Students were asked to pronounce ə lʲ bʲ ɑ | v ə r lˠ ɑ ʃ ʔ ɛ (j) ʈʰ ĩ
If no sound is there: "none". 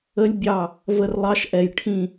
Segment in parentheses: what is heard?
j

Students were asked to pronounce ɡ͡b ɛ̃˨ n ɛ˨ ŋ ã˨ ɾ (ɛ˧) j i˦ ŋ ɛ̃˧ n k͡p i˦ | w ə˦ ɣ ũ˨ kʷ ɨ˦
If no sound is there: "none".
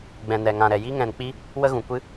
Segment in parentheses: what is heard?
ɛ˨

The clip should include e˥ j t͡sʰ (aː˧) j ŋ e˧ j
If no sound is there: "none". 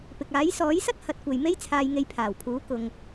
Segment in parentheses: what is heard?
aː˧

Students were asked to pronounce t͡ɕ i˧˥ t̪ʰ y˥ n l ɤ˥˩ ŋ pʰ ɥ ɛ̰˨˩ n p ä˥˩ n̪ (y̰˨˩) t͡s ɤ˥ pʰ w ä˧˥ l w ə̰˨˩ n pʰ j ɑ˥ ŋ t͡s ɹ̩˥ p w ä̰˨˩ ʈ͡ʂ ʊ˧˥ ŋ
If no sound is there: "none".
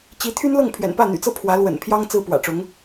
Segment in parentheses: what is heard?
y̰˨˩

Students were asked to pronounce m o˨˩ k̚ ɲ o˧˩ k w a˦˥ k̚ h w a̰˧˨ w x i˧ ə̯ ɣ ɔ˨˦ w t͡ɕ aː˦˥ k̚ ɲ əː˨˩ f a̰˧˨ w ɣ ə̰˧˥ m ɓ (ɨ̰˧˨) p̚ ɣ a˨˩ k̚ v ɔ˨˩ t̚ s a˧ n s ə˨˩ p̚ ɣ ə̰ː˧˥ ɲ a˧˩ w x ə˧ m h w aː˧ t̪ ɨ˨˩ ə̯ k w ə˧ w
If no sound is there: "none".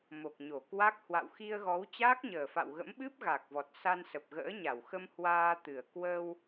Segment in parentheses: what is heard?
ɨ˦˥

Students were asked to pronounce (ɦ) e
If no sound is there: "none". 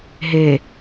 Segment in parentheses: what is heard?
ɦ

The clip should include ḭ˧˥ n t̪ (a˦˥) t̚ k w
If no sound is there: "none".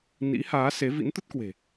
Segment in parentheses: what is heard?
ə˦˥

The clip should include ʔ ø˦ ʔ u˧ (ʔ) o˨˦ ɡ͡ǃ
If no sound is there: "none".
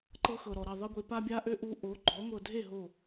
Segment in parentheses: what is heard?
ʔ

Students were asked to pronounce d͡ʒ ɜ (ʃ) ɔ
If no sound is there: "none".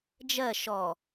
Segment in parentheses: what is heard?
ʃ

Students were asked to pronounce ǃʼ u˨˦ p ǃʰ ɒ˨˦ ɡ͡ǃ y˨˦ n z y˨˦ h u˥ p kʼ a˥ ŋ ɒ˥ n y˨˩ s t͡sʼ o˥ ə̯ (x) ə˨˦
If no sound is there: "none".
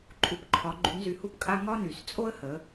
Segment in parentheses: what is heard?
h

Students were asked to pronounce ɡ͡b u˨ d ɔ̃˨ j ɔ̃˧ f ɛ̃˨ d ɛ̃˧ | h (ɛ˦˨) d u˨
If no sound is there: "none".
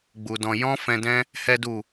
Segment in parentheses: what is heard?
ɛ˨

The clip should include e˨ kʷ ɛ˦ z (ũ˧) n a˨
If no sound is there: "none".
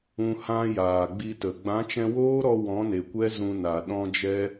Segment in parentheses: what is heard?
ũ˧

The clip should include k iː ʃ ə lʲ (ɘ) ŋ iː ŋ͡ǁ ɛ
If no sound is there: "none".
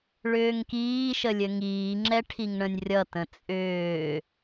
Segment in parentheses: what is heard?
ɘ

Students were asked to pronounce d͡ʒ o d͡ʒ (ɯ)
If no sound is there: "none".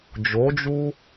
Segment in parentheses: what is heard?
u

